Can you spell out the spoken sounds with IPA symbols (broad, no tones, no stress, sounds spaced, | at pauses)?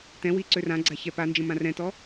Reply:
t ɛ̃ w i ǀ ø r ã ɡ͡ǀ a ç ɛ p a n d͡ʒ ə̃ m ã r ɛ̃ t ɔ